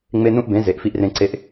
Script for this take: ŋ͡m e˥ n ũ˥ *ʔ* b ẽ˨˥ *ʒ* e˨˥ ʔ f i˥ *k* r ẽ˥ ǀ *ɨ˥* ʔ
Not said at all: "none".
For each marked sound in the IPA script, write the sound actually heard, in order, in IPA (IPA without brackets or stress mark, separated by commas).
ʔ, z, ʔ, e˥